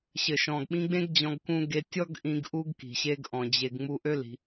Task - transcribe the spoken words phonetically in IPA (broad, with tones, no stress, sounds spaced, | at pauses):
ɕ ɘ˨ ʃ ɔ̃˨ ɡ ɓ ĩ˧ ɡ͡b ẽ˦ ɡ d͡ʑ ɔ̃˧ ɡ k ũ˧ ɡ e˧ tʲ ɔ˦ ɡ ʔ ĩ˧ ɡ ʔ u˧ ɡ k i̤˨ ɕ e˧ ɡ ʔ ɔ̃˧ d͡ʑ e˦ ɡ ŋ͡m u˧ ʔ ø˦ l i̤˧